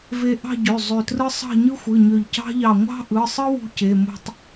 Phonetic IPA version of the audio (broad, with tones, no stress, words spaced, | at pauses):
ve˧ ʔɑ̤˥˧ɟø˩˧˩ zˤø˧˩trɯ˥ sˤɑ̤˥˧ɲɯ˥xʷɯ˩˧˩ɲø˧˩ʎ cɑ̤˥ʎɑ˧˩ ŋʷɑ̤˥ʔɯ˩˧˩sˤɯ˥ wṳ˥ce˩˧˩mo̤˥˧tˤ